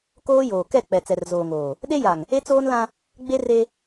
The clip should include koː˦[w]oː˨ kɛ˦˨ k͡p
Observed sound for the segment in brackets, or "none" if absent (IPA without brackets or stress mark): j